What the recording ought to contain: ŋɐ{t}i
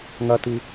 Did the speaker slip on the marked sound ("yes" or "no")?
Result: no